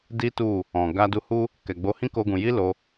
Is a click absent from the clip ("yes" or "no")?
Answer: yes